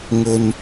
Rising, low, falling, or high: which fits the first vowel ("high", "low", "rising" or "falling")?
low